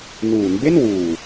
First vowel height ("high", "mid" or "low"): high